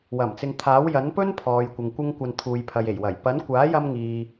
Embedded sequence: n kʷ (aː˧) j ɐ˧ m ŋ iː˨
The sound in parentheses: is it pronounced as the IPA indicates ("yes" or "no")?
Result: no